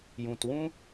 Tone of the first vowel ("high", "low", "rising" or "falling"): low